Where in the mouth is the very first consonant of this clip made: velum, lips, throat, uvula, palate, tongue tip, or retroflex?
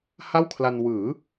throat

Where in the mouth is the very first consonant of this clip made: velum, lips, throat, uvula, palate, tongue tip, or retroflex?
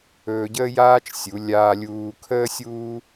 palate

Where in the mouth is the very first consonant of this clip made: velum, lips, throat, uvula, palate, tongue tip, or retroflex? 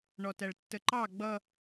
retroflex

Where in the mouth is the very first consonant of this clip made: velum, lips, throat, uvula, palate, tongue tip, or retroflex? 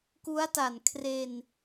velum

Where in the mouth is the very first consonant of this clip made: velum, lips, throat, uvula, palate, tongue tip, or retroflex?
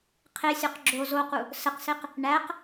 uvula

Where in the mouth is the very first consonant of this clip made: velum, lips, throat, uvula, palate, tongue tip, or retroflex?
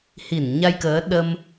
throat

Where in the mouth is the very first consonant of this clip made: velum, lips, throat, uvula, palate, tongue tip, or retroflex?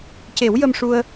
palate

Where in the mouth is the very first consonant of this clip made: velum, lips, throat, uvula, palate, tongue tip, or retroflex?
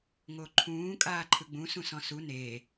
velum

